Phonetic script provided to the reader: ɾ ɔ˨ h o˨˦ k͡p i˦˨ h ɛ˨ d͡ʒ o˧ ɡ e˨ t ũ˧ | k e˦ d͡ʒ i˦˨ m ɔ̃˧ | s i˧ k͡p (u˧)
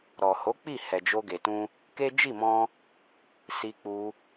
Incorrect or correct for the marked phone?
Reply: correct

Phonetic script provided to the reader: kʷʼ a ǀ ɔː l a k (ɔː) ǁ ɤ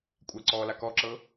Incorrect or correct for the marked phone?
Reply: incorrect: ɔ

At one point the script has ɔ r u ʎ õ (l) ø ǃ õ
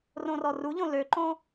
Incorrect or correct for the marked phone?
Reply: correct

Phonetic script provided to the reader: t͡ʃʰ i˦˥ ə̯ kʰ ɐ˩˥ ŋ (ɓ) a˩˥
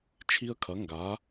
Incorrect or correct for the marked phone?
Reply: incorrect: ɡ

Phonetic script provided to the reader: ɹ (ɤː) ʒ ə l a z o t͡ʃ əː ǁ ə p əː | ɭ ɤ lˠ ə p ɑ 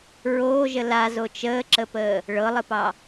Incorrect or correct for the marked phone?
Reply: incorrect: oː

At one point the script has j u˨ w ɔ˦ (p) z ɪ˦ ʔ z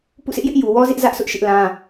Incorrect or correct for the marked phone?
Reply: incorrect: none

